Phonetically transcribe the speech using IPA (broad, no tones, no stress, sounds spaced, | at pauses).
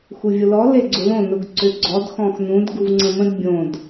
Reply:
x u vʲ ʊ l ɔ l e ɡ͡ǀ ʊ l õ n ʊ ɡ ǀ ʏ ɡ͡ǀ ɔ d x ɔ̃ x n ũ d ɡ u v ŋ͡ǀ ə̃ m ə̃ d bʲ õ d